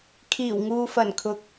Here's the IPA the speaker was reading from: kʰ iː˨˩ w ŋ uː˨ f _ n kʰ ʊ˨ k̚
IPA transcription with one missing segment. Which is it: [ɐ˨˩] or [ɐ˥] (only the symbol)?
ɐ˨˩